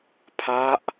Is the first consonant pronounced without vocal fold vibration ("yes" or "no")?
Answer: yes